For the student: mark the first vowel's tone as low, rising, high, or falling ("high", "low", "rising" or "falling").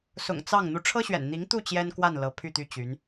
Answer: low